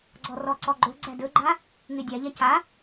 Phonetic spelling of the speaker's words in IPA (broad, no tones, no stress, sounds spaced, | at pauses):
ɡ͡ǀ ɔ r ɔ ǀ ɔ ɡ͡ǃ ɵ ɡ͡ǀ æ d ɵ ɡ͡ǃ a | ŋ e dʲ a ʎ a c a